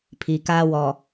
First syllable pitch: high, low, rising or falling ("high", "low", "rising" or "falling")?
low